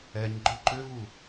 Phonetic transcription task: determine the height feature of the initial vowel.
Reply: mid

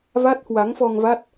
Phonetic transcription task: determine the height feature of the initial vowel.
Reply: low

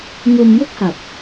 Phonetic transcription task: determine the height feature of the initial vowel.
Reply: mid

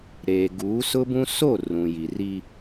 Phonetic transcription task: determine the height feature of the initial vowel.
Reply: mid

